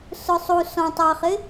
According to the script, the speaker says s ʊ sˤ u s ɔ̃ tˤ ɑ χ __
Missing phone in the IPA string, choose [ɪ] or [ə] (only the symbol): ɪ